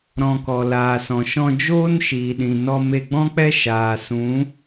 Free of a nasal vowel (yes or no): no